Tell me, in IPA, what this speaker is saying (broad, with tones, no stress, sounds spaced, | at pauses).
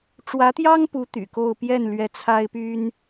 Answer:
ʈ͡ʂ w ä˧˥ t̪ j ɑ˥ ŋ p u˧˥ t̪ y̰˨˩ k o˥˧ ʊ̯ p j ɛ˥˩ n l ɥ ɛ˧˥ t͡sʰ a˥ ɪ̯ p y˥ n